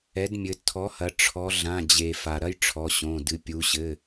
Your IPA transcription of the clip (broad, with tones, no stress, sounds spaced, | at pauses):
ɛ˩˥ d mʲ ɘ˩˧ tʰ ɔ˩˥ h ɐ˩˧ ʈ͡ʂʰ ɔ˩˧ ɮ ã˩˧˩ d͡ʑ e˩ f a˩ ɾ ɐ˥ j ʈ͡ʂʰ ɔ˩˧˩ ɕ õ˩˧˩ d ɨ˩˧ pʲ u˩˧ ɕ ɘ˩˧˩